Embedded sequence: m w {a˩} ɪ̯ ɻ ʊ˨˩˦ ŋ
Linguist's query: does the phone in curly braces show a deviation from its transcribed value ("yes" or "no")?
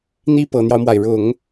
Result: no